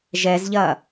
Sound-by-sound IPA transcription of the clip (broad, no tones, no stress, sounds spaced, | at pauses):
ʒ ɛ z ʎ ɐ